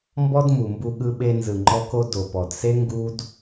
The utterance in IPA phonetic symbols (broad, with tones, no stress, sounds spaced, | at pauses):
m b ɔ˦ d m u˨ m b u˧ ɠ ɯ˧ ɓ e˧ n z ɯ˨ ŋ͡ǃ ɔ˧ k o˧ d o˨ p ɔ˨ d s e˦ ŋ ɡ u˦ d